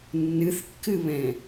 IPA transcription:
nːɨθkːɨβɛ̃

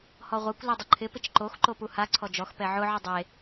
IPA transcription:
hɔʁʷekʷ lɛdˤʊǃʰɪ pɪt͡ʃǃox ǃopuha ǀʰɔd͡ʒɔx pɛʕʊ ʕʊdˤe

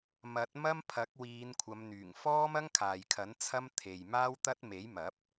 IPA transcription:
mɐ˨˥t̚mɐ˥m pʰɐ˨˥k̚wiː˨˧nkʷʰɐ˨˧mn̪yː˨˩ŋ fɔː˥mɐ˥ŋkʰaː˨jkʰɐ˨˥n t͡sʰɐ˥m t̪ʰe˨j maː˥wt̪ɐ˥t̚ me˨˥jmɐ˨˥p̚

